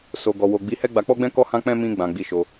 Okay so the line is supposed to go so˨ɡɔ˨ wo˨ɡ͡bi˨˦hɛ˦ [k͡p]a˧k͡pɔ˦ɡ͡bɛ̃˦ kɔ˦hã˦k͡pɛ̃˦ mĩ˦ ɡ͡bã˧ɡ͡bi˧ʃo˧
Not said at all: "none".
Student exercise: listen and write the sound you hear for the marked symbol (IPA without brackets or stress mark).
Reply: ɡ͡b